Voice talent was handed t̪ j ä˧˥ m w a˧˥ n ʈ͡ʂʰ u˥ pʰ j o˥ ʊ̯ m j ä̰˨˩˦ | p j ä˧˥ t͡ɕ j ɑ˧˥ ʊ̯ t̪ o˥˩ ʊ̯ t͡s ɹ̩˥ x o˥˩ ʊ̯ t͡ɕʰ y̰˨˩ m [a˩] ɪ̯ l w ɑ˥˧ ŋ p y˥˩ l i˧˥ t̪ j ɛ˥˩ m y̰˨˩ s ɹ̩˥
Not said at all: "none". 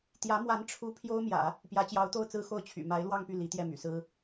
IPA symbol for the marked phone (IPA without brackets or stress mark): a˧˥